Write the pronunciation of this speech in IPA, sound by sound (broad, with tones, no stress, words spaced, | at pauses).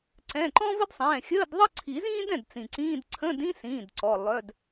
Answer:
ǀɛ̃˩˧˩ǃɔ̃˥və˥dsˤɛ̃ː˩˧˩ xʲəː˧˥˧dðˤə˥ ǀʰi˨˩˦zĩː˥dɛ̃˩˧˩d t͡sĩ˩ǀĩː˧˥˧d ǀʰə̃˧˥˧dĩ˥sĩː˩˧˩d ǀɔ˩˧˩ lˠœ˧˥˧d